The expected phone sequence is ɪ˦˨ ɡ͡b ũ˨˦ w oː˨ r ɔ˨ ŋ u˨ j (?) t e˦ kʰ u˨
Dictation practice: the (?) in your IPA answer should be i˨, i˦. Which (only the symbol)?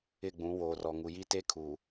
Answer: i˦